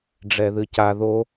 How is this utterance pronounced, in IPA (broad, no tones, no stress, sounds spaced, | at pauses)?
ɖ͡ʐ ɛ ð ɨ c a ð o